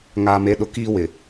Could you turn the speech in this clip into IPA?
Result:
ŋ aː˨ m e˨˦ ɗ ʊ˨ k iː˦ w ɪ˨

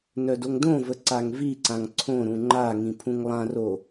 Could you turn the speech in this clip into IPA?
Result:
n œ d o ŋ d õ v ə ǀ a ŋ v i ǀ ã ŋ ǀʰ õ ɾ ũ ŋ͡ǃ a ŋ ĩ pʰ ũ ŋ lˠ ã r o

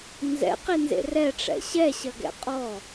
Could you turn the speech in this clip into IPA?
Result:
n z ɛ̰ q i n z ḛ r ɛ ʈ͡ʂ ɛ̰ ɕ ɛ ɕ ɐ ɡ ɛ̰ qʼ ɔ

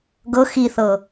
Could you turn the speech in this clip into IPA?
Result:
ɡ ɤ x i θ ɤ

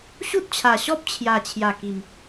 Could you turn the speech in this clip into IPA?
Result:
ɕ u˦ t̚ t͡ɕʰ a˨˩ ɕ ɔ˦ p̚ t͡ɕʰ j a˨˩ t͡ɕʰ j a˨˩ k i˨˩ m

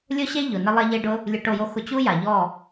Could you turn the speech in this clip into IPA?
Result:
lʲ ʊ˦ ɕ e˦ ʎ ʊ˨ n ɪ˧ lˠ ɛ˧ ʎ e˧ ɖ ʊ˧ | lʲ ʊ˧ ʈ o˦˨ j o˦ x ʊ˧ t͡ɕ u˦ j a˨ ʎ ɔ˦˨

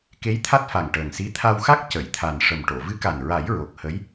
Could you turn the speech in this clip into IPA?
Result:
k e˧˥ j t̪ʰ a˦˥ t̚ f a˨˩ ŋ ʈ əː˨˩ ŋ s i˧˥ t̪ʰ a˧ w x a˦˥ k̚ c ə˨˩˨ j t̪ʰ a˨˩ n ʂ ə˨˩ m ʈ o˨˩˨ v ɨ˧˥ k a˨˩ n ɹ a˨˩˦ j ɹ o˨˩ k̚ h ə˧˥ j

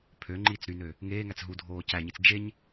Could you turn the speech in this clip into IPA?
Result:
pʰ ø ŋ͡ǃ iː t͡s ɾ y n ø | ŋ eː ŋ æ t͡s ɦ u dʱ oː c æ ɲ i t͡s d͡ʒ e ɲ

